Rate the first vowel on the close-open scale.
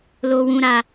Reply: mid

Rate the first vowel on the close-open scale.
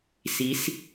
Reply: close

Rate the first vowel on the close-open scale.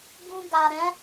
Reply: close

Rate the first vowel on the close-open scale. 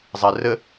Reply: mid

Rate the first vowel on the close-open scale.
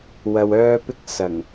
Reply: open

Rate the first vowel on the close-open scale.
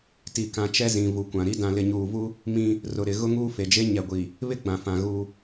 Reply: close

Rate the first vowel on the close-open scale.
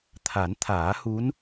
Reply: open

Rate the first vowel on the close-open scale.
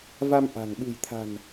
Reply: open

